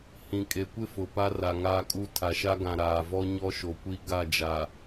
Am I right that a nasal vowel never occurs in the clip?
no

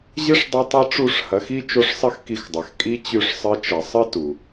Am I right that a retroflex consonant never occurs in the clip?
no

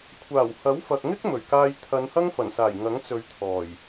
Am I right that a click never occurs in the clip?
yes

